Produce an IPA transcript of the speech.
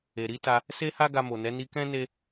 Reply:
e˨ ɾ i˨˦ t a˧ | s e˦ h a˦ ɡ a˧ m o˨ n ɛ˨˦ n i˧ k ɛ̃˦ n e˦

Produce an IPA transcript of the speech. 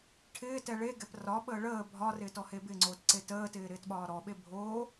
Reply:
ʈʰ ɪː t ɛ ɭ e ɡ ɛ p r ɒ ɓ əː ɭ əː bʱ ɒ r ɪː t ɔ h e b ɪ ŋ͡ǀ oː t ǀ e t əː t ɪː ɾ ɪː t ɓ ɒː ɾ ɔ ɓ e bʱ oː

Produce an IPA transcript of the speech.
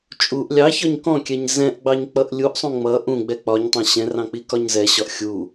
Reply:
t͡ʃʼ u ʔ lʲ ɑ ç ɒ ɲ k ɔ̃ kʲ ɛ ɲ z ɛ̃ ʔ ɡ͡b ɑ ɲ k͡p ʌ ʔ lʲ u ʔ sˤ ũ ŋ͡m ʌ ʔ ũ ɡ͡b ɛ k͡p ɒ ɲ tˤ ɑ̃ ɕ ɛ̃ r ɑ̃ k͡p i k ɒ ɲ z ɛ ɕ ɒ ʔ xʲ u

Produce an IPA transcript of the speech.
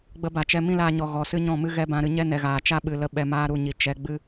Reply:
ɡ͡b ə˧ b a˨ t͡ʃ ɛ˧ m ĩ˦ l aː˧ ɲ ɔ˨ ɣ ɔ˨ s ɨ˦ ɲ ɔ̃˦˨ m ɨ˦ ɣ ɛ˦ b ã˧ ɾ ɨ˧ ɲ ɛ˦ n ɛ˨ ɣ aː˨ t͡ʃ a˦ ɓ ɨ˨ l ə˧ ɓ ɛ˧ m aː˦ ɾ u˦˨ ɲ i˨ t͡ʃ ɛ˧ ɡ͡b ɨ˦

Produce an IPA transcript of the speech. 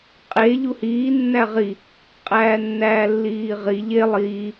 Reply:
qʼ e ʎ u h iː nː æ ʁ i | qʼ æː nː æː lː iː ʁ i ʎ e lˠ iː

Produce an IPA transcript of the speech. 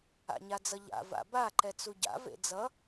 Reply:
a̰ ɲ a d͡z ʌ ʎ a̰ v a̰ b a ǃ ɛ t͡s u ɟ a̰ v ḛ d͡z ʌ

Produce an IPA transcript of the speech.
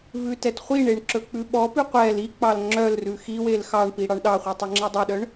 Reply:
v ʉ t ɛ t χʷ i ɳ e ɳ ǁ ɵ k͡p ʉ ɓ ɔ p ʉ qʷ ɛ l i k͡p ɑ l ŋ͡ǁ œ l r ʉ x i w e l x ɑ ɳ p i ɽ ɑ ɳ ɗ ɑ χʷ i tˤ ɵ ŋ͡ǁ ɛ dˤ ʉ ɗ œ ɳ

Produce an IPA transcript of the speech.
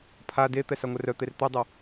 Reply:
pʰ a d e t̪ ɛ s a ŋʷ œ r œ t̪ e r t̪ œ dˤ œ

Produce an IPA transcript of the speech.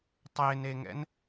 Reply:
tˤ e n e ŋ ɛ̰ n

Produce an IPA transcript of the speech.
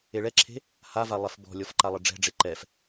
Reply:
e ɭ ɛ ǁʰ e̤ | h a v a lˠ ɛ f b ɔ̤ lʲ ɔ f ǃ a lˠ ə ɖ͡ʐ ɛ̤ ɖ͡ʐ e ǃ ɛ f

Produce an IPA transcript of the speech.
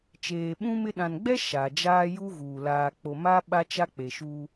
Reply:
t͡ʃ eː˨ ɓ ũ˦ m ɪ˦ ɗ ã˨ n ɡ͡b ɛ˦ ʃ a˨ d͡ʒ aː˦ j u˦ ɣ uː˨ l aː˨ k͡p o˨ m a˦ ɓ a˦ t͡ʃ a˦ k͡p e˨ ʃ u˦

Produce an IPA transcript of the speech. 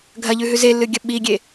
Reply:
ɡʱ ɐ ʎ ʉ ɦ ʉ z e lː ɨ ɡʲ ɐ ɓ i ɡʲ e

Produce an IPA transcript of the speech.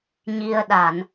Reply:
ɲ i˧ ə̯ ɗ a˧˩˨ n

